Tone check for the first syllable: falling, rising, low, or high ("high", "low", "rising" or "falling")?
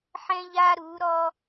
high